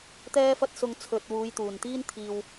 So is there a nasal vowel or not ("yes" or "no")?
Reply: no